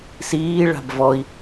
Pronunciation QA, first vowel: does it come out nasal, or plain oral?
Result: oral